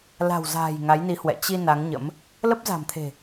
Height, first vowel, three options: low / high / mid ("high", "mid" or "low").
low